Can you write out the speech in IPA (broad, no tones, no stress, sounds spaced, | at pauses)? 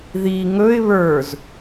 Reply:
ð i ŋ ɵ ɪ̯ β ə˞ z